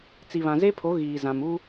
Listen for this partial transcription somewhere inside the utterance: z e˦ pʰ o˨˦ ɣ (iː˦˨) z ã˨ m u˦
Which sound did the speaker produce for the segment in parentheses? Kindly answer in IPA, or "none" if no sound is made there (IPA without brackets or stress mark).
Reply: iː˨